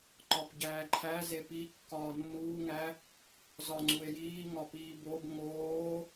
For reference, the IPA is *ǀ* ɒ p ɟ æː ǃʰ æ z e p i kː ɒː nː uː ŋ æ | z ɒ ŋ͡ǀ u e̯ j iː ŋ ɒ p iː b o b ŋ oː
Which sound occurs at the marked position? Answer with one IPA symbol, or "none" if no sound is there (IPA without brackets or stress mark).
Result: ǃ